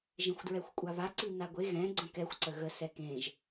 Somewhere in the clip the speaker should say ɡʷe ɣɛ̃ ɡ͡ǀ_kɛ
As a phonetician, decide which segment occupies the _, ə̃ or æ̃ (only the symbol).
ə̃